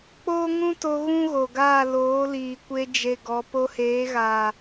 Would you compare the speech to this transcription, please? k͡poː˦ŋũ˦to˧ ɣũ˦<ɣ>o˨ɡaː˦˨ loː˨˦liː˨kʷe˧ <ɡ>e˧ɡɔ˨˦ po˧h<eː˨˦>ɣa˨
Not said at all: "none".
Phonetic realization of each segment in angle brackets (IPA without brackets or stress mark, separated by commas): ɣ, d͡ʒ, eː˨˦